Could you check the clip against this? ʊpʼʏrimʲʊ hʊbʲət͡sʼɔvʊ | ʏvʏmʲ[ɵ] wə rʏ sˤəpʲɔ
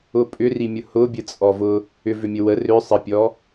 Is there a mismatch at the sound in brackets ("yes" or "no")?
yes